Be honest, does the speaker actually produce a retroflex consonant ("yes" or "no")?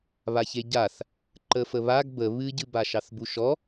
no